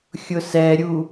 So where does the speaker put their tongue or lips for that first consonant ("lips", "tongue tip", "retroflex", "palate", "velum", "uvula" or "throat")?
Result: velum